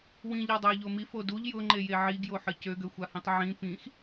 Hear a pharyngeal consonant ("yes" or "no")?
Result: yes